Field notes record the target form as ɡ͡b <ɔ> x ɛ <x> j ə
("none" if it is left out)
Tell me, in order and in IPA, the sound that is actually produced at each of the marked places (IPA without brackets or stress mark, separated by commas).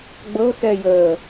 ɤ, none